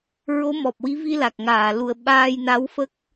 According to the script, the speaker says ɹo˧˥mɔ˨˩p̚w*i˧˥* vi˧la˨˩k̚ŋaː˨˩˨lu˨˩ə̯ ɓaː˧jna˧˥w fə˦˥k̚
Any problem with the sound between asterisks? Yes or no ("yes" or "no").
no